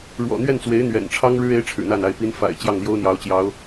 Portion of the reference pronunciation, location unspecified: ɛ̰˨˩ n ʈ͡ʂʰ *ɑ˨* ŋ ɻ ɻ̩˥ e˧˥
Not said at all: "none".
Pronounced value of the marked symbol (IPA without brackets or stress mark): ɑ˥